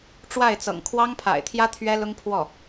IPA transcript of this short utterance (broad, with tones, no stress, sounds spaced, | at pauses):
ʈ͡ʂ w a˥˩ ɪ̯ t͡s ɤ̰˨˩ ŋ kʰ w ɑ˥ ŋ pʰ a̰˨˩ ɪ̯ t̪ʰ j ä˥ t̪ʰ ɥ ɛ˥ l ʊ˥ ŋ pʰ w ɔ˥˩